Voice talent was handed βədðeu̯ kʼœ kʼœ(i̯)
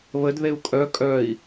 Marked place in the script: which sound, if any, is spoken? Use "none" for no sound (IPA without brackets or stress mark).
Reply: i̯